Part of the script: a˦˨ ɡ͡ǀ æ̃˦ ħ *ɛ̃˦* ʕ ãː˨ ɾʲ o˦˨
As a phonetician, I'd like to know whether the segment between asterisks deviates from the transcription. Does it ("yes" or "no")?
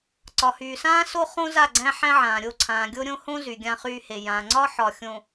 yes